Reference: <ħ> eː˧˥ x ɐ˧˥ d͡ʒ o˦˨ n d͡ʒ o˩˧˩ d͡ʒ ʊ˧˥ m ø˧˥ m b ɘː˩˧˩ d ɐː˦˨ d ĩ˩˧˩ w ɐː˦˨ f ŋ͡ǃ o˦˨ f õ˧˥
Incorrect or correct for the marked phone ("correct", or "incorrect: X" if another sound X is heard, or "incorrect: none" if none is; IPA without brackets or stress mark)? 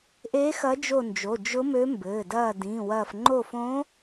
incorrect: ʔ